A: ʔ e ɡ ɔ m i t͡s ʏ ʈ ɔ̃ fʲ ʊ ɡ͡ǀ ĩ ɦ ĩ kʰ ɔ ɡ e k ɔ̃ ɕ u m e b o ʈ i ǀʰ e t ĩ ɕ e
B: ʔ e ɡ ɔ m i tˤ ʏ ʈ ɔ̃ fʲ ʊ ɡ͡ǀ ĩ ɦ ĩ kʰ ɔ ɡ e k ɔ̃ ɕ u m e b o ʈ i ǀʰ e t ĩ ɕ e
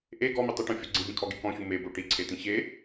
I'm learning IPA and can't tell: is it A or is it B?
B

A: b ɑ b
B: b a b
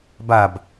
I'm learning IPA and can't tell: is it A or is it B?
B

